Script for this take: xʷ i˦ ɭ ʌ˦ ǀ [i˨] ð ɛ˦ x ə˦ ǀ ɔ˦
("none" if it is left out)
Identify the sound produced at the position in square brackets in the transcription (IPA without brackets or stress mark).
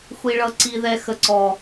i˦